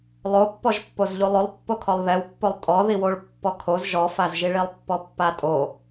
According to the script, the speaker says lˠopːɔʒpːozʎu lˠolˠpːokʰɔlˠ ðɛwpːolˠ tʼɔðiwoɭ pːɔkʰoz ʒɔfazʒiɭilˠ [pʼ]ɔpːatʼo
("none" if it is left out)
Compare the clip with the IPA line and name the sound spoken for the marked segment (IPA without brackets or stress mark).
pː